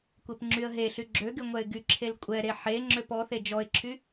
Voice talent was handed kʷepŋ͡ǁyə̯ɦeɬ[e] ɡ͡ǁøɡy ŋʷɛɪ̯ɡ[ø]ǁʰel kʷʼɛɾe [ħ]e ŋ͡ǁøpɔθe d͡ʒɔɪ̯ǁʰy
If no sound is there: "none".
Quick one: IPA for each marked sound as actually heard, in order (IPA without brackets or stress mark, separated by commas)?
y, y, ħ